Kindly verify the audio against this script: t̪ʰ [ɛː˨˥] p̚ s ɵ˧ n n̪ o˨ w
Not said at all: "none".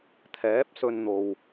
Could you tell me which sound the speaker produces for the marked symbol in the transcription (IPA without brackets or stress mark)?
ɛː˨˥